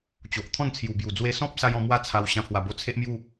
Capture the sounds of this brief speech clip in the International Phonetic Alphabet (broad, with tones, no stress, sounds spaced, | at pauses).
t͡ɕ o˨ ʔ t̪ʰ ɔ̃˥˧ n t͡sʰ j u˨˩ b j u˨˩ d͡z w e˧ s ɔ̃˦ p̚ s a˧ j ɔ̃˧ m w a˥˧ t͡sʰ a˧ w ɕ ã˧ pʰ w a˨˩ b o˧ t͡sʰ e˦ ʔ m j u˥˧